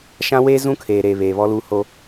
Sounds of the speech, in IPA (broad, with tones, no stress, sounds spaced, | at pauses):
ʃ ã˦ w eː˦ z ũ˦ kʰ eː˨ ɾ eː˨ β eː˨ β ɔ˦ l uː˦ h o˦